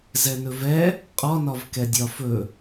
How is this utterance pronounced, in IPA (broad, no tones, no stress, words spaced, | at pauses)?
zɛnɵvɛ | qʼɒnɒv kɛdʲɒfɵ